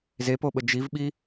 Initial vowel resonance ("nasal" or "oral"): oral